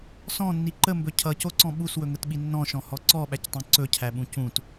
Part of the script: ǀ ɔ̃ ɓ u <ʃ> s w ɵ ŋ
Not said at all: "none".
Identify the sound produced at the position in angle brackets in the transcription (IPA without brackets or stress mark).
none